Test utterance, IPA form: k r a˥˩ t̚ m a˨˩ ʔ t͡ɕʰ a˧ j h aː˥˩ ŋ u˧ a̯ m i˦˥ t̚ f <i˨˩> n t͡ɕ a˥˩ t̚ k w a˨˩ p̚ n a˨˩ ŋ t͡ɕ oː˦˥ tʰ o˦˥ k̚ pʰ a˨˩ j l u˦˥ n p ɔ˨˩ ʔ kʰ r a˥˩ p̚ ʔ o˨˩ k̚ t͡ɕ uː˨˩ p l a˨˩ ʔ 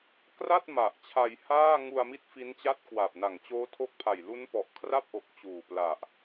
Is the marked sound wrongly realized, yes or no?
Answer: yes